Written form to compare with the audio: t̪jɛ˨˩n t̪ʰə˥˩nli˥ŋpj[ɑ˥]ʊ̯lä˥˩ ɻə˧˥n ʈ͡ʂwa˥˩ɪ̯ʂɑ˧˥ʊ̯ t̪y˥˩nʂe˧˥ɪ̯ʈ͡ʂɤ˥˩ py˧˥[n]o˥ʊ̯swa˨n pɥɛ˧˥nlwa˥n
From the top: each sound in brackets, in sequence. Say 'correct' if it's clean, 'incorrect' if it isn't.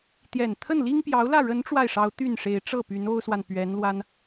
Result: incorrect: ɑ˧˥, correct

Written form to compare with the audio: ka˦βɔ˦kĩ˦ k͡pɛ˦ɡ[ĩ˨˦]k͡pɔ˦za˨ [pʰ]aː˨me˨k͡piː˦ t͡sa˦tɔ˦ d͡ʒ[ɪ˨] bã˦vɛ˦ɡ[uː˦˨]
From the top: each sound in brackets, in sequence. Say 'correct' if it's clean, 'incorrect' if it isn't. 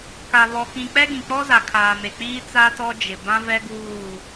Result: incorrect: ĩ˨, incorrect: kʰ, correct, correct

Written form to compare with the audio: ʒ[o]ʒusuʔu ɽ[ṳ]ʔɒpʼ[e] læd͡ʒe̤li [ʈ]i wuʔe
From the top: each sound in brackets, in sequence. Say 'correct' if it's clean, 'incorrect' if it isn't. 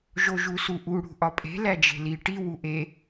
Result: correct, correct, incorrect: e̤, correct

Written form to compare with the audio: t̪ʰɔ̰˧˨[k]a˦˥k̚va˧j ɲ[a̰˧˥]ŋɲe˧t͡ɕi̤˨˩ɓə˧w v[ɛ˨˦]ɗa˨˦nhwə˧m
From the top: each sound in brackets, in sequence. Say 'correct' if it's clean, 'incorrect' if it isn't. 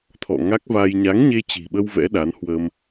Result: incorrect: ŋ, incorrect: a˨˦, incorrect: ɛ̰˧˥

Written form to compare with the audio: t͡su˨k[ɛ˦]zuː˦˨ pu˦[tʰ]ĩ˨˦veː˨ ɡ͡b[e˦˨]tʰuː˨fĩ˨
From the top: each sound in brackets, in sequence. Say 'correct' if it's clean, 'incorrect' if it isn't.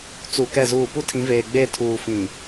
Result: incorrect: ɛ˦˨, correct, correct

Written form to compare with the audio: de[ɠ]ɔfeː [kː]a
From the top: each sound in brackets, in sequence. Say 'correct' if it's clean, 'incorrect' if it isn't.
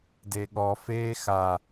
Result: correct, incorrect: x

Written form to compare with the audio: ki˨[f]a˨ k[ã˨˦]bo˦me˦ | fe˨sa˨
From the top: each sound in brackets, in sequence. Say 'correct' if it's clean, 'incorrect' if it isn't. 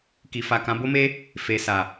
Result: correct, correct

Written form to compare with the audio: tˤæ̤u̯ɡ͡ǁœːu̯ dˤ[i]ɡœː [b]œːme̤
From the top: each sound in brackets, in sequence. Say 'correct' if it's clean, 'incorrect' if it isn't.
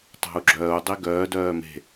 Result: correct, incorrect: d

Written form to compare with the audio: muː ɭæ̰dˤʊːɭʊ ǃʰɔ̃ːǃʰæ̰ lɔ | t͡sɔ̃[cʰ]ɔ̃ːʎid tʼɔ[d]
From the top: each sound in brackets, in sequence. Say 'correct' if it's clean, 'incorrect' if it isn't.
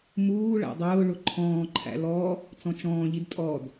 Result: incorrect: t͡ʃ, correct

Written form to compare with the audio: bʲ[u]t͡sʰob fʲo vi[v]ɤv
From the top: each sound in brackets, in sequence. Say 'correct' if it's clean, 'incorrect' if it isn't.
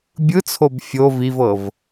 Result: incorrect: ɯ, correct

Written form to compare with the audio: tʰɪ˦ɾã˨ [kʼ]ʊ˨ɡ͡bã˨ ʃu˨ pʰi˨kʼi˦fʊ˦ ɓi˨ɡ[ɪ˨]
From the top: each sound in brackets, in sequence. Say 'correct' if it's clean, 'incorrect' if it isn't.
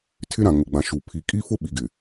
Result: incorrect: ŋ, correct

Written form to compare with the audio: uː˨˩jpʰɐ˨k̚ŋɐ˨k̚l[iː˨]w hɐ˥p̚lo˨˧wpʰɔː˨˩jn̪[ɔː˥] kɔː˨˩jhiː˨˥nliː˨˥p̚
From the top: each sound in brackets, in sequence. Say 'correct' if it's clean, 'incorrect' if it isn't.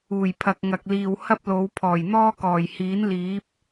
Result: correct, correct

